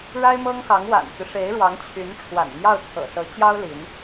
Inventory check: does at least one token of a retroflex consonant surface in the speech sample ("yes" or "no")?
yes